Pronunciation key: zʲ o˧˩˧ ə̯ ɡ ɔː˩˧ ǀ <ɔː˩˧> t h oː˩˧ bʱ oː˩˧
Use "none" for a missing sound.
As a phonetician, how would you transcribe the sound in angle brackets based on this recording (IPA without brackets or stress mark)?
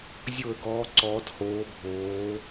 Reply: ɔː˩˧